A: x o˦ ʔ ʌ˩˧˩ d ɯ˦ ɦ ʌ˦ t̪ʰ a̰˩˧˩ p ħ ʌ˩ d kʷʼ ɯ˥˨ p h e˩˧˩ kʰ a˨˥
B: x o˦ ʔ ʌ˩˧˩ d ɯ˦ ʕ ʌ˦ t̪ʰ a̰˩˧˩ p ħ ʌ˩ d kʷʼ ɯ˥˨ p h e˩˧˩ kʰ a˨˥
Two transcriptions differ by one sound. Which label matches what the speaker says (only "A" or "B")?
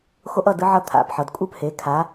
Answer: B